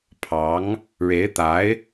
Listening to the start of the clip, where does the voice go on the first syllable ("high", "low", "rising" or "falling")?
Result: rising